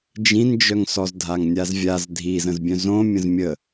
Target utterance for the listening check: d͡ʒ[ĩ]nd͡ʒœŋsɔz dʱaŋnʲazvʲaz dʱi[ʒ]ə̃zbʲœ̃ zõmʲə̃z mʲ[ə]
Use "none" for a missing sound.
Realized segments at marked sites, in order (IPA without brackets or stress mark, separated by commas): ĩ, z, ə